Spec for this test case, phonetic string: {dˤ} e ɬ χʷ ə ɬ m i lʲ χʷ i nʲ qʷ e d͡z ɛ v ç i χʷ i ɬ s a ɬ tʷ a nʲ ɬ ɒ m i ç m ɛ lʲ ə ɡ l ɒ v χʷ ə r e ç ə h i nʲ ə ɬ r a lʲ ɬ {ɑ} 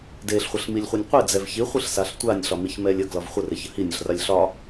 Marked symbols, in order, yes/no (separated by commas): no, no